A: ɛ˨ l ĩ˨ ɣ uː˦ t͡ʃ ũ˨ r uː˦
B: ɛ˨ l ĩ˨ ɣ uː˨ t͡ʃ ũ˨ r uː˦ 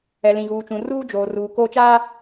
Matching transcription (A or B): B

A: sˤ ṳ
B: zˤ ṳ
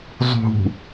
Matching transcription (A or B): B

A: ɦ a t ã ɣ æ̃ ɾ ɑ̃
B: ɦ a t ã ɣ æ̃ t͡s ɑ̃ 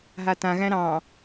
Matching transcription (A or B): A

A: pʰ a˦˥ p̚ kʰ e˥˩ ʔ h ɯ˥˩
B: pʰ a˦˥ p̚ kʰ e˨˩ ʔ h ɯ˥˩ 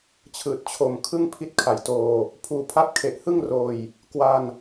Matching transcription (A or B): B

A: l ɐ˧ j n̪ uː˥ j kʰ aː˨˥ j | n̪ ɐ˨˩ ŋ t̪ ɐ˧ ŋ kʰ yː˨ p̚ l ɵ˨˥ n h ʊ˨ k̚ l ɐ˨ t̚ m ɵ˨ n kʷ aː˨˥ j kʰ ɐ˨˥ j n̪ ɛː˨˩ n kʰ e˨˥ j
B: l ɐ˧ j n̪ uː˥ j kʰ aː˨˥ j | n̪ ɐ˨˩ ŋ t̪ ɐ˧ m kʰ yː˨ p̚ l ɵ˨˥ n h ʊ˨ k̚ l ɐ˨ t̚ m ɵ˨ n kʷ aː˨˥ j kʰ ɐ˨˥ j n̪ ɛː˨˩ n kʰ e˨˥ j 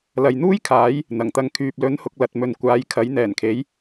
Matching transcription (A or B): A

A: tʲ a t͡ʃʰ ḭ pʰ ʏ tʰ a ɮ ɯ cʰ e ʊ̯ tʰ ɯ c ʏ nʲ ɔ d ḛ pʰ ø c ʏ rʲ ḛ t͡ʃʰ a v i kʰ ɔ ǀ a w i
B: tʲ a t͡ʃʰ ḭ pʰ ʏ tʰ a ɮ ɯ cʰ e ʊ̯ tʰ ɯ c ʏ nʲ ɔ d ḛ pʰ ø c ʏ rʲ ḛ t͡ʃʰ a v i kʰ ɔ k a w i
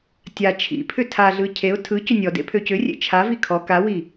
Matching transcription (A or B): B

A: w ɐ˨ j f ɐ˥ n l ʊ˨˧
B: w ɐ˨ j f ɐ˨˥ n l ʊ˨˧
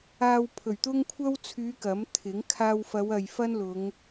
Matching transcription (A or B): A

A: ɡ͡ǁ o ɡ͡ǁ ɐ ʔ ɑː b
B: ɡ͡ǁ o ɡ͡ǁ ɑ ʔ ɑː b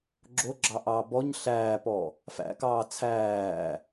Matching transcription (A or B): B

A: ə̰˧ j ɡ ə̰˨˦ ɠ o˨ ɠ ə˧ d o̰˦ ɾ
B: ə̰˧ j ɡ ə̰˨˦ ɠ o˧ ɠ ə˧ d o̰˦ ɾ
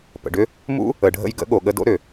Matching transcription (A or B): A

